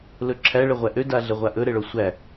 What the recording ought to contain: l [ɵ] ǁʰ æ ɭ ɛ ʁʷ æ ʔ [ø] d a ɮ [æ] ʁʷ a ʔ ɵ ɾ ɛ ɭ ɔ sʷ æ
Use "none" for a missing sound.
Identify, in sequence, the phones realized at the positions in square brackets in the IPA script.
ɵ, ø, ɛ

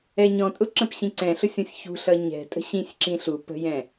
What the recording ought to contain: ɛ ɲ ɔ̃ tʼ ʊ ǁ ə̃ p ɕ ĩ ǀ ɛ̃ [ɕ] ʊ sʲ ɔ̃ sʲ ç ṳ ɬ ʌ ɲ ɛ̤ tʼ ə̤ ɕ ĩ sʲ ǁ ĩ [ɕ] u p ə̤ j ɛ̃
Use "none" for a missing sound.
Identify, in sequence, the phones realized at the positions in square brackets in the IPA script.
ɬ, ɬ

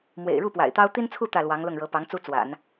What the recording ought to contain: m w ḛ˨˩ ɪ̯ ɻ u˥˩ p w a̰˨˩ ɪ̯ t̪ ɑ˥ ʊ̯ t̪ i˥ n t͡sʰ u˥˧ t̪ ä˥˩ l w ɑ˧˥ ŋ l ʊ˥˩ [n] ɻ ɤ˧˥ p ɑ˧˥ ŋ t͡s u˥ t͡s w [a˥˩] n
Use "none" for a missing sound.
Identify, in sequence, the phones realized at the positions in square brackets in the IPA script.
ŋ, a̰˨˩˦

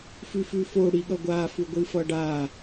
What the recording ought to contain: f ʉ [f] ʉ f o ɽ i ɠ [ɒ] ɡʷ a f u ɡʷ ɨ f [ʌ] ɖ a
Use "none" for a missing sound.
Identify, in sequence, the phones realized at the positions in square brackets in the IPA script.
f, ʌ, ʌ

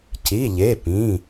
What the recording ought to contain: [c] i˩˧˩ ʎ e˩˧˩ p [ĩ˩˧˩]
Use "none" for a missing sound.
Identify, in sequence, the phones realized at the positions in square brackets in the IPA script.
c, ĩ˩˧˩

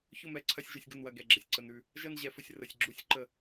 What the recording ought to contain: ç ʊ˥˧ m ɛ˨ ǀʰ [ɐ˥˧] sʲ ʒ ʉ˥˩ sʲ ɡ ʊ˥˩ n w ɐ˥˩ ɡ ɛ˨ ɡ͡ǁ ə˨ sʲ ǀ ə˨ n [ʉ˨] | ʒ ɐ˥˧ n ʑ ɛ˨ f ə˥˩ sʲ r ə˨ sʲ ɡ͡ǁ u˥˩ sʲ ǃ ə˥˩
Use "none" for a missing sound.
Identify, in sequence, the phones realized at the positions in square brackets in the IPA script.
ɐ˥˧, ʉ˨

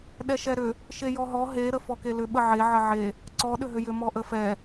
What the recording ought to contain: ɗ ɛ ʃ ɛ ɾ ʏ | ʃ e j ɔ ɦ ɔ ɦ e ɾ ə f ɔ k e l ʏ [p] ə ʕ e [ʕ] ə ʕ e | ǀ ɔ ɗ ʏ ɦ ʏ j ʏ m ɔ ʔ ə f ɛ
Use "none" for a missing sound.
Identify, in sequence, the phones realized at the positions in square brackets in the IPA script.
ɓ, ʕ

